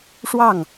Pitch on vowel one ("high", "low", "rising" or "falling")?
falling